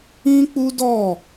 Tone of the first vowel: high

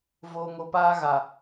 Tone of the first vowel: low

